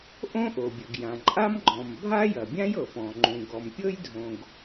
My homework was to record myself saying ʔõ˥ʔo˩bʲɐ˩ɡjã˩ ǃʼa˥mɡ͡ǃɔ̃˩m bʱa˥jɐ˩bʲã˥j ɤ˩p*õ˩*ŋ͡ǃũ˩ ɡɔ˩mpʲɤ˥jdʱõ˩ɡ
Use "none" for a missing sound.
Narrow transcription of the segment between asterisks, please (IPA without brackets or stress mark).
ɔ̃˩